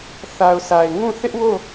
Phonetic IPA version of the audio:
θ a˨ ʊ̯ s a˨ ɪ̯ ŋ ũ˦˨ θ ɪ˦ ʔ w o˦˨

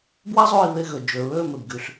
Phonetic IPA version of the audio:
b w a˥ zˤ oː˦˨ i̯ β e˦˨ ɣ ø˩ d͡ʒ ø˩ ɹ øː˦˨ m e˩ b ɡ y˩ ɬ

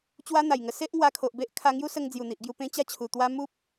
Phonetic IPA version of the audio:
t͡ɕ w a˦ n̪ a˨˩ j ŋ ə˧ s e˦ ʔ ŋ w a˧ kʰ o˨ ʔ b e˦ ʔ kʰ a˧ ŋ j u˦ s ə˧ ŋ d͡z j u˨˩ n̪ i˨ ʔ ɡ j u˧ p ẽ˦ t͡ɕ a˥˧ t͡ɕʰ u˨˩ t̪ w a˦ m u˦ p̚

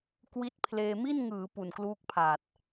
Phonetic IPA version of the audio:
k w i˦˥ t̚ pʰ l eː˧ m i˥˩ n ŋ ɯː˩˦ p u˨˩ n k l uː˦˥ k̚ pʰ aː˨˩ t̚

